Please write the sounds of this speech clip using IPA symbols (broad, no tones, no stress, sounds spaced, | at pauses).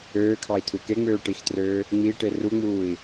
øː kʰ ɑ i̯ tʰ u k e ŋ͡m øː ʈ i x t r øː | ŋ͡m i ʈ e r u ŋ͡m uː i̯